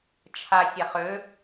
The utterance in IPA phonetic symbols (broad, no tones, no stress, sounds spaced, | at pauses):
t͡ʃʰ a sʲ a χ ø